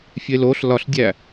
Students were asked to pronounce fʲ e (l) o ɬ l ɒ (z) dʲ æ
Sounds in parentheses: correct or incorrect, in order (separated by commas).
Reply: correct, incorrect